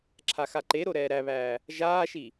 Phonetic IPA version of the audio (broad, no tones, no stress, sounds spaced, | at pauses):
ǁʰ a x a ǃ e ɾ o ɾ ɛː ɾ æ β æː | ʒ aː ʃ i